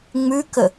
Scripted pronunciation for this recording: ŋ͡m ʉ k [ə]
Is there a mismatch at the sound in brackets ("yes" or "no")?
no